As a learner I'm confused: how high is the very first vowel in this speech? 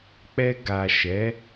mid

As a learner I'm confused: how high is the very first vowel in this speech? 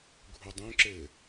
high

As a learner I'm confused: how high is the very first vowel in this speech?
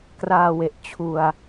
low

